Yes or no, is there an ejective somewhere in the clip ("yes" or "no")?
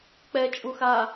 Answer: yes